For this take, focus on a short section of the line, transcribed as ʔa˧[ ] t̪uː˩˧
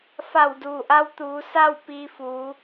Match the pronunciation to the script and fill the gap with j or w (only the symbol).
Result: w